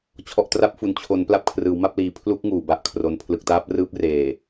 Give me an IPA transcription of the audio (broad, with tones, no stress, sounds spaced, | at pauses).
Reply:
t͡ɕʰ ɔ˨˩ ʔ t r a˥˩ p̚ f u˩˦ n t͡ɕʰ o˩˦ n p l a˦˥ p̚ kʰ r ɯː˩˦ w m a˥˩ p̚ l iː˩˦ pʰ l u˦˥ k̚ ŋ uː˩˦ b a˨˩ ʔ kʰ r o˧ n pʰ l ɯ˨˩ k̚ t aː˦˥ p̚ r ɯː˦˥ p̚ r eː˨˩